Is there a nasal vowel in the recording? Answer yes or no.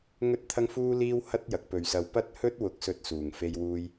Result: no